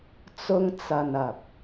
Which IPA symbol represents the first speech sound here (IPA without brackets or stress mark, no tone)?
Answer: t͡s